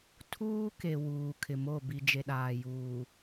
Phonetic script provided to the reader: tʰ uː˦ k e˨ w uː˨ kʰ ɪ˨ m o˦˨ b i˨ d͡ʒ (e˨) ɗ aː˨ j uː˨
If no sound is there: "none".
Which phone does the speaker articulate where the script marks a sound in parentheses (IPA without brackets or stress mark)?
e˨